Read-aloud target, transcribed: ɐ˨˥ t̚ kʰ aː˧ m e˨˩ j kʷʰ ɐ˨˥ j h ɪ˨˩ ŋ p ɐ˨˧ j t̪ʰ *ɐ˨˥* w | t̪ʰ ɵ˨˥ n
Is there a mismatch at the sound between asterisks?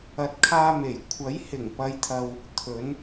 yes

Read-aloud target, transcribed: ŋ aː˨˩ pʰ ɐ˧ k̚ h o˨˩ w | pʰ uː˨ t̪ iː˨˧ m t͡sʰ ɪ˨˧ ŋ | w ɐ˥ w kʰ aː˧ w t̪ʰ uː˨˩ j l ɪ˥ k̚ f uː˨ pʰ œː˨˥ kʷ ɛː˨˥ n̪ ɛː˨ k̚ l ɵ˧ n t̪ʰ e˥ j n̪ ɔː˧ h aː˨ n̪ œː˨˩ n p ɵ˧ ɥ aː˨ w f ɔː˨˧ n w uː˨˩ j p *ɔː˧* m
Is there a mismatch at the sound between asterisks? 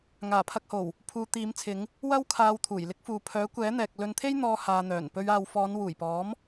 yes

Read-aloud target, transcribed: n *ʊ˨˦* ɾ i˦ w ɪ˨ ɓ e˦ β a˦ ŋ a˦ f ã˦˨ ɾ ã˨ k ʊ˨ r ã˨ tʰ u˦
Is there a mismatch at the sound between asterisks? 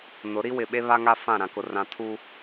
no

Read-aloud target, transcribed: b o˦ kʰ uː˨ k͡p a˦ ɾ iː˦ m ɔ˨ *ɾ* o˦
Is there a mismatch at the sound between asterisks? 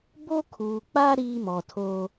yes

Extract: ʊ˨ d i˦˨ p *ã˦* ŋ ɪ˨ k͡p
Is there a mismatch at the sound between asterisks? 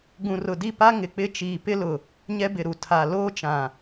yes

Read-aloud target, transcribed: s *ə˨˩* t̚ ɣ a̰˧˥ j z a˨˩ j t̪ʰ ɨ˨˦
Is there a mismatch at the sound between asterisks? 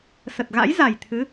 no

